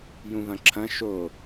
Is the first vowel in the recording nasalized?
yes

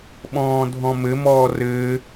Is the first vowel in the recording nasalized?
yes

